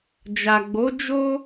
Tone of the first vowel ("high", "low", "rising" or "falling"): low